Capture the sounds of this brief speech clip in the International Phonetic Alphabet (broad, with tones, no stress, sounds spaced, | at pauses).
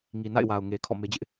ŋ i˨ n a̰˦˨ ɪ̯ w a˨ ʊ̯ ŋ e˨ kʰ ɔ̰˦˨ m e˦ d͡ʑ ɪ˦ ʔ